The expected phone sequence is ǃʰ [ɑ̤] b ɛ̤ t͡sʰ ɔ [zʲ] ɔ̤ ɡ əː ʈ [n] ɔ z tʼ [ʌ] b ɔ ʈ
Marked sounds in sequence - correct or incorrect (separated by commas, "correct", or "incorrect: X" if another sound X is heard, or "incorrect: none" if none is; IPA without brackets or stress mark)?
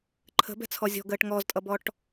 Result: incorrect: ə̤, correct, incorrect: ŋ, correct